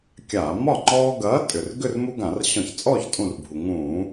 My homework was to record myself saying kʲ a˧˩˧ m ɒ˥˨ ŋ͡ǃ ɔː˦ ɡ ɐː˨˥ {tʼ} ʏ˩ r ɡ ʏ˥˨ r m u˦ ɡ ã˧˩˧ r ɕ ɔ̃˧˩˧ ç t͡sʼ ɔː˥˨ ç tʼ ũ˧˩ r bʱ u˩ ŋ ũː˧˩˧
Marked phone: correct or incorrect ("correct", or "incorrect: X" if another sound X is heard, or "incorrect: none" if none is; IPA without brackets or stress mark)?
correct